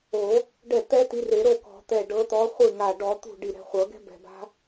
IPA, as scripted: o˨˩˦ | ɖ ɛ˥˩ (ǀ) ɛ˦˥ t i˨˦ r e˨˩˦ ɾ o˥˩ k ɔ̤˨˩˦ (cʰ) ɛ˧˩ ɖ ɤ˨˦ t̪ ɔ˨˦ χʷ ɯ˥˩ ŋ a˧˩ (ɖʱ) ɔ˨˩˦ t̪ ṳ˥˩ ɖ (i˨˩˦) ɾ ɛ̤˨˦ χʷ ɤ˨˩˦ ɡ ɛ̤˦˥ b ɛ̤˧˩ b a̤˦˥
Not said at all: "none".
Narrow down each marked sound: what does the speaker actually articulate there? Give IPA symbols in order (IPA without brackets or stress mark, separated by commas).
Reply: t̪, t̪, ɖ, i˧˩